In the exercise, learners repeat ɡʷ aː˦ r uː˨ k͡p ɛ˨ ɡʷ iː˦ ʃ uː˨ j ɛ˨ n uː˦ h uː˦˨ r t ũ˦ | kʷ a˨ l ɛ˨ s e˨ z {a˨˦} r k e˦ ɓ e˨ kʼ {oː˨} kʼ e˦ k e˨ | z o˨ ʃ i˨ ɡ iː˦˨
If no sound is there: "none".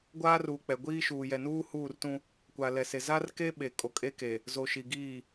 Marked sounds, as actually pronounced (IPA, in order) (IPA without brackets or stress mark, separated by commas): a˦, o˨